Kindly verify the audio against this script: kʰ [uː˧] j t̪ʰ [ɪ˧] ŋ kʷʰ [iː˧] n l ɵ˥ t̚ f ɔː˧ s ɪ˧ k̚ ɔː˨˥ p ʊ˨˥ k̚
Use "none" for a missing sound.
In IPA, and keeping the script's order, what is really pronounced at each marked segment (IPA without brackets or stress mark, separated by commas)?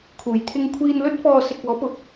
uː˨˩, ɪ˧, iː˧